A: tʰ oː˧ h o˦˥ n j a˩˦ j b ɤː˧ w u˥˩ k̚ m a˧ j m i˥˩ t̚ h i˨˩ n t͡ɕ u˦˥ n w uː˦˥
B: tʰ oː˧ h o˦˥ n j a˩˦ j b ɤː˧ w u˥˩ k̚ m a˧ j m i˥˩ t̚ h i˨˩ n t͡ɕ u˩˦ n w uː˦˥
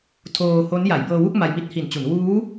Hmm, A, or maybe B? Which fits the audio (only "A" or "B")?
B